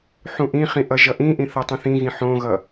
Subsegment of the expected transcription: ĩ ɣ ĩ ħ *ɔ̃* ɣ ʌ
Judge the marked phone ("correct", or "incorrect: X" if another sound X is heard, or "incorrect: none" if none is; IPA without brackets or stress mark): incorrect: õ